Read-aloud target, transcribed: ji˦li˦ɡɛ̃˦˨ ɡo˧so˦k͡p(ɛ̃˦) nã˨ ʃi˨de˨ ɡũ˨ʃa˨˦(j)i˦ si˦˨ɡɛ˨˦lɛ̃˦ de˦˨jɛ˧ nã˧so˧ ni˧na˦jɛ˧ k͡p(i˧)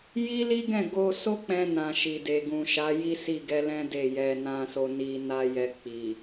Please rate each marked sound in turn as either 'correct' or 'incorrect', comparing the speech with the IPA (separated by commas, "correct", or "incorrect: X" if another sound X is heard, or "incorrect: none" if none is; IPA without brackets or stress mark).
incorrect: ɛ̃˧, correct, incorrect: i˨